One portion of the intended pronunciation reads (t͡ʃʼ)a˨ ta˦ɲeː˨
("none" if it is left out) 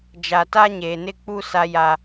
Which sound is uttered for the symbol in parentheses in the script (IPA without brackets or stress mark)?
d͡ʒ